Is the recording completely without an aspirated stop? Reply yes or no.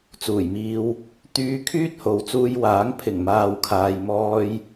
no